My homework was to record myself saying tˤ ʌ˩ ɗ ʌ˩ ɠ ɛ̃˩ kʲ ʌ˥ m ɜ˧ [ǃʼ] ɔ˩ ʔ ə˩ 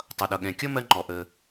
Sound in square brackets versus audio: incorrect: ŋ͡ǃ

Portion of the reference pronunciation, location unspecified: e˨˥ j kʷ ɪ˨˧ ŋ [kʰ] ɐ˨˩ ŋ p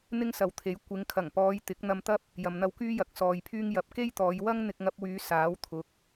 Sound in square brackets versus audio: correct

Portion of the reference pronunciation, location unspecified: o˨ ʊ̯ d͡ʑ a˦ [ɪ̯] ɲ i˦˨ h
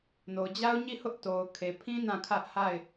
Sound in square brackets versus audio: incorrect: ʊ̯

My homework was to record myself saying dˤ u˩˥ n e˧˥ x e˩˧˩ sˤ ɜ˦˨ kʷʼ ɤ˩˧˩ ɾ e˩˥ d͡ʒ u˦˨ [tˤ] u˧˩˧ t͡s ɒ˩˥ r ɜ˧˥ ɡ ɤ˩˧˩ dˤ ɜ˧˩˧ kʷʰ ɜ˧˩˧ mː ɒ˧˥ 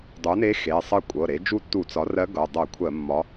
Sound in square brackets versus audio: incorrect: tː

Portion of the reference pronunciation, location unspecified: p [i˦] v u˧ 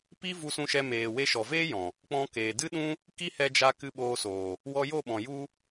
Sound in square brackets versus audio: correct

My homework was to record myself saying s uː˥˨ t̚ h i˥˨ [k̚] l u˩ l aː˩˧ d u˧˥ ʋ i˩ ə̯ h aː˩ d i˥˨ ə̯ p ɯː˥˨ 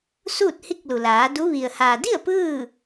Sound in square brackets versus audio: correct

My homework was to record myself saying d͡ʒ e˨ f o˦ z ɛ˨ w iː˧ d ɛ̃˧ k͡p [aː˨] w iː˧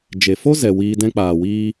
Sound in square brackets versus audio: correct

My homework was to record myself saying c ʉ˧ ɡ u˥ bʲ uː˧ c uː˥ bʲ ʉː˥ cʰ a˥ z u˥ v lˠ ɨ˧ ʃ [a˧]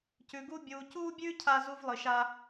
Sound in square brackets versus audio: incorrect: a˥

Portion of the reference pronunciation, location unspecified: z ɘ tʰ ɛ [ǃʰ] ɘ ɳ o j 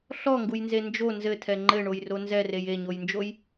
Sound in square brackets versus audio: incorrect: ŋ͡ǃ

